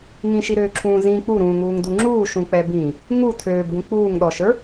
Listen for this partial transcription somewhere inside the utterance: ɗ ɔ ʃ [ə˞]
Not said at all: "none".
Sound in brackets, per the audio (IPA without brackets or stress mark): ə˞